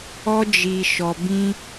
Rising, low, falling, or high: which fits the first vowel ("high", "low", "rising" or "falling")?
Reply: high